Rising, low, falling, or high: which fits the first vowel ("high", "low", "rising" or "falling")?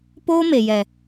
high